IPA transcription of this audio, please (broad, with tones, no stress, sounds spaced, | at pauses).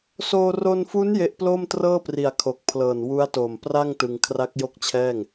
s oː˧ r o˧ n f u˦˥ n j e˦˥ ʔ p l oː˥˩ m t r ɤː˥˩ p r i˨˩ a̯ kʰ o˨˩ k̚ pʰ l ɤː˨˩ n w u˦˥ a̯ t oː˨˩ m p r a˥˩ ŋ t ɯ˧ ŋ kʰ r a˦˥ k̚ j o˥˩ k̚ t͡ɕʰ ɛː˥˩ ŋ